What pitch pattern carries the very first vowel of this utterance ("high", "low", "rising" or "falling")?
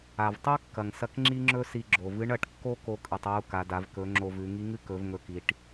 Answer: low